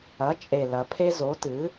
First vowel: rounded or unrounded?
unrounded